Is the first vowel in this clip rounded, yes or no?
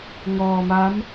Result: yes